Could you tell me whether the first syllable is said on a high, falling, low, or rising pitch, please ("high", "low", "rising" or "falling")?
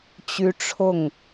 high